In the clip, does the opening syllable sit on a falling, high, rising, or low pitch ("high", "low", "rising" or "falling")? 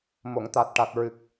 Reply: low